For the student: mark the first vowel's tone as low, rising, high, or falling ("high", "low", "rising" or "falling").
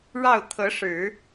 falling